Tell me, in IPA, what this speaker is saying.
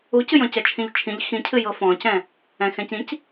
u c ɨ j ɔ̃ c ɛ t͡ʃʰ ĩ ʎ t͡ʃʰ ĩ ʎ x ĩ cʰ ɨ j ɤ f ɔ̃ c ɛ̃ | ɛ̃ x ɛ̃ c ĩ c

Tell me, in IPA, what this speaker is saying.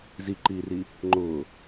z i ǃ iː r i | ŋ͡ǃ ʊː

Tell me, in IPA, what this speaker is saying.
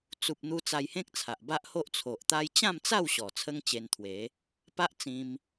t͡s u˨ p̚ n̪ u˧ t͡s a˧ j h ẽ˦ k̚ t͡sʰ a˨ ʔ b a˦ ʔ h o˦ ʔ t͡sʰ o˨ ʔ t̪ a˦ j t͡ɕ ã˥˧ m t͡s a˥˧ w ɕ ɔ˨˩ t͡sʰ ə˦ ŋ t͡ɕ e˧ n t̪ʰ w e˨˦ | p a˦ ʔ t͡s ĩ˧ m

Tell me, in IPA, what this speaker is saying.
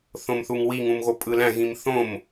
θ õ m θ u ŋ w i ŋ ũ m ɣ o pʼ ɯ l æ̃ ɣ ĩ m θ õ m

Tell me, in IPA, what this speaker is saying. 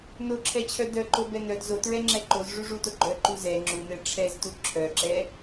n o ǁʰ ɛ t͡ɕʰ œ d œ ǃ o b ɛ n œ d z o t ɹ ɛ ŋ͡ǁ ɛ ǃ o z ʐ u ʐ u t o ɡ͡ǃ œ ǃ u z ɛ ŋ͡ǁ u n ɛ ʈ͡ʂʰ ɛ z t u ǁʰ œ ǁ ɛ

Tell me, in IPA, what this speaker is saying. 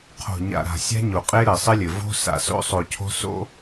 qʰ o̤˨ ɲ a̰˨ ɾ a̤˨ sʲ a̤˦ ɲ o˨ qʼ e˦ ɾ ɘ˨ sˤ ɘ˦ lʲ ɘ˨ v o̤˦ s a̰˨ s o̰˦ sˤ o˨ cʰ o̤˦ s o̰˦

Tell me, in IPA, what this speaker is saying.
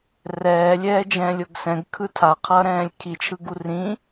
r ɛː lʲ ɛː d͡ʒ ɛ̃ː lʲ o ɡ s ɛ̃ ɡ kʰ ɯ tʰ a qʰ ʌː ɾ ɛ̃ː lʲ kʰ i t͡ʃʰ ɯ ɡ u r ĩ

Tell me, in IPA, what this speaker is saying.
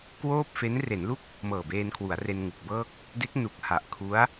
k w oː˥˩ p̚ f e˦˥ n r e˩˦ n l u˥˩ k̚ | m ɤː˨˩ b eː˧ n kʰ w u˩˦ a̯ r e˧ n ŋ u˨˩ k̚ b ɤː˥˩ k̚ | d e˦˥ k̚ n u˨˩ k̚ h a˨˩ ʔ kʰ u˦˥ a̯

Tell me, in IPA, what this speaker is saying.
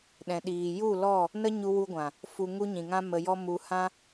ɗ ɛ̃˨ ɗ iː˨ j u˦˨ l ɔ˦˨ | n ə˦ ɲ u˧ w u˧ ɡʷ ã˨ | f u˧ ŋ u˦ ɲ ĩ˨ ŋ ã˦ m ə˧ j ɔ˦ m u˧ h ã˦

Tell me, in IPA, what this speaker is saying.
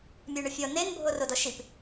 mʲ e ɳ ʊ fʲ ɔ n e n bʱ o r o d ɔ ʃ i p

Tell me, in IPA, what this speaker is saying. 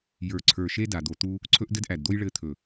j ə˞˨ ǀʰ ə˞˨ ʃ e˦ d a˨ d̪ o˨ t̪ u˦ | ǀʰ ɵ˦ ʔ d ɘ˦ d ʔ æ˨ d d̪ o˦ j ɭ ɘ˦ t̪ʰ ɵ˨

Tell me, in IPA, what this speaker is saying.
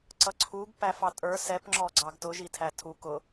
ǀ ʌ ǀʰ u ɡ p æ f ɑ tʼ ə˞ s ɛ p ŋ͡ǁ ɔ ɡ͡ǀ ɑ ɡ t ʊ ʒ i tʰ æ tʰ u k ʊ

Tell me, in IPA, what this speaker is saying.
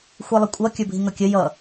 xʷ i lˠ ə kʷʼ ʌ kʲ ə˞ bʱ i ŋ ʌ kʲ ə j ʌ

